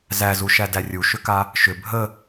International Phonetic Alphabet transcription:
z æ z u ʃ æ d æ rʲ u ʃ ʏ k a | ʃ ʏ bʱ ə

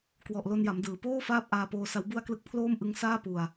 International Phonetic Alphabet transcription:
k w ɔ˨˩ ʔ l o˧ n j a˩˦ m d ɯː˩˦ p oː˥˩ f aː˥˩ p̚ ʔ aː˧ p oː˧ s a˦˥ w b u˥˩ a̯ k l ɯ˥˩ k̚ pʰ l oː˥˩ m ʔ ɯ˦˥ ŋ s aː˥˩ p u˧ a̯

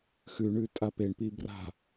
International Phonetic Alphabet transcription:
x ʉ ɳ ʉ tʼ a p e ɳ p i b r a̤

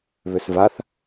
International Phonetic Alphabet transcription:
β ʏ s v a θ

